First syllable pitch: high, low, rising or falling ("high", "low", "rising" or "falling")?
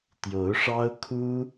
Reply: rising